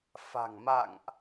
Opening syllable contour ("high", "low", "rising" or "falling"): low